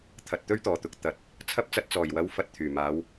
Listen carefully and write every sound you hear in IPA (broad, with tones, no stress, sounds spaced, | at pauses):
t̪ʰ ɐ˨ t̚ t̪ ɵ˥ ɥ t̪ ɔː˨˩ t̪ ʊ˨ k̚ t̪ ɐ˨˥ t̚ | t͡sʰ ɐ˧ p̚ t͡s ɐ˨ t̚ t͡s ɔː˨˩ j w ɐ˨˧ w f ɐ˨ t̚ t̪ʰ yː˨˩ m aː˨˧ w